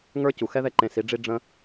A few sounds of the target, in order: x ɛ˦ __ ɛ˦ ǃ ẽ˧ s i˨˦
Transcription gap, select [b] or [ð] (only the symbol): ð